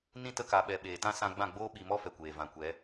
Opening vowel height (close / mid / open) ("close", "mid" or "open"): close